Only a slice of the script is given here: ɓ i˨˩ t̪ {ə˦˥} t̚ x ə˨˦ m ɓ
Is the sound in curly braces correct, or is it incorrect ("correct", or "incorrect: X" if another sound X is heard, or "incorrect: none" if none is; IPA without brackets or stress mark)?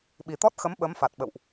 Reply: incorrect: ɔ˦˥